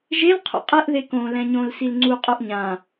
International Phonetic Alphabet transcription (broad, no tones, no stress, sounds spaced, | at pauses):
ʒ e l qʰ o̰ qʼ ɛ ʔ ð e k õ l ɛ̃ ɲ õ l s i l ŋ͡ǀ u qʼ o ʔ ɲ ã